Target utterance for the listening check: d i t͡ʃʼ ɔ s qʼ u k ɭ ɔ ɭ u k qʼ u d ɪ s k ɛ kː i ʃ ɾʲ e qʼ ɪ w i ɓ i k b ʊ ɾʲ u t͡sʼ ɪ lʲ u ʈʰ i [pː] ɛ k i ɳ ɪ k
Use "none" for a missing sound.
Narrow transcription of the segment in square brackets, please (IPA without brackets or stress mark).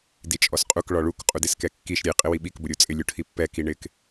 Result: pː